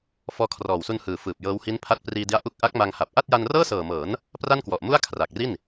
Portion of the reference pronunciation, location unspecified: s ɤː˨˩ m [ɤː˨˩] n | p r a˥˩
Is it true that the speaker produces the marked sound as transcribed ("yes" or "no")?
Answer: no